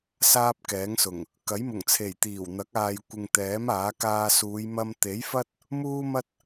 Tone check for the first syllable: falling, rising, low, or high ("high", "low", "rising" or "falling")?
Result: high